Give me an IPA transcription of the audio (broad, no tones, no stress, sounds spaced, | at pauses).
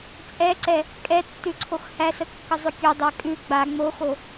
t͡sʼ ɛ ǀ ɛ | kʼ ɛ tː ʉ ǀʰ o x h æ s ə kː ə zˤ ʉ kʲ o dˤ æ kʼ ʉ ɡ͡b a ŋ͡m o x o